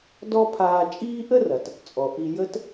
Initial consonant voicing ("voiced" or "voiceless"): voiced